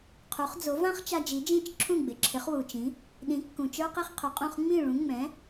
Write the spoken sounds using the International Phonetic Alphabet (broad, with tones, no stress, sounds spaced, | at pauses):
qʰ u˩˥ χ d͡z o˩˥ v ã˥ χ t͡ʃ a˧ d͡ʒ i˩˥ d͡ʒ ĩ˥˩ t͡ʃ ǁʰ ũ˥˩ ɡ͡b ɪ˩ ǁʰ ɪ˩˥ χ w u˩ t͡ʃ ĩ˩˥ | ɗ ĩ˩˥ kː ũ˩ t͡ʃ ə˞˥ q i˥ χ qʰ ɵ˩˥ qʼ ũ˥˩ χ ŋ͡m ĩ˥˩ ɭ ũ˩˥ ŋ͡m ɛ̃˩˥